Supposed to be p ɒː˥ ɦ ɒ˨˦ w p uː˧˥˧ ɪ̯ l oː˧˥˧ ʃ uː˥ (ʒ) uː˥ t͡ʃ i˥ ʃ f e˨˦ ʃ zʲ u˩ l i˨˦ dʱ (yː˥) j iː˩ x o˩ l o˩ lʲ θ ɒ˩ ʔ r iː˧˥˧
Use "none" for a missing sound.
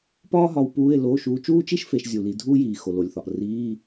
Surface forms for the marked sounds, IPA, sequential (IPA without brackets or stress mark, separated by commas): t͡ʃ, uː˥